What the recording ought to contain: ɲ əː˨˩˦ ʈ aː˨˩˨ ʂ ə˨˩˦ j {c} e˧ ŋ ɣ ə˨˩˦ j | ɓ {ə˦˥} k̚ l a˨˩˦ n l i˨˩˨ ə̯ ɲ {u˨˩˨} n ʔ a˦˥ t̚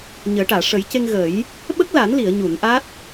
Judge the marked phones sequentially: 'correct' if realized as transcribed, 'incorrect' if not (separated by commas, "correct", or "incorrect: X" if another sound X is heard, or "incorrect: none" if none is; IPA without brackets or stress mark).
correct, correct, correct